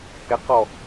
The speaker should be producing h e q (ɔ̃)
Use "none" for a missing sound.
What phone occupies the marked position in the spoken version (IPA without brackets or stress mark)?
ɔ